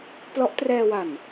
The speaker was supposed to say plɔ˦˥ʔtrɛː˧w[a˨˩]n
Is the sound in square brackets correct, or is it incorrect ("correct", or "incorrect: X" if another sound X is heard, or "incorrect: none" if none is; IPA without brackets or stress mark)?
correct